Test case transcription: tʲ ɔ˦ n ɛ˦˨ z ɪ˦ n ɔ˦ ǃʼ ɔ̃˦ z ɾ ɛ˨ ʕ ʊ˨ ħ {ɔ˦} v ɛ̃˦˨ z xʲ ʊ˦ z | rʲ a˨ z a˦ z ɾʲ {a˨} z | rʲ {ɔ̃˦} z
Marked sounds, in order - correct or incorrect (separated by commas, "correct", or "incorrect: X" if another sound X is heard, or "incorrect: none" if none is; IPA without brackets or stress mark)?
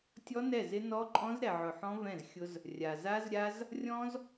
incorrect: ɔ̃˦, incorrect: a˦, correct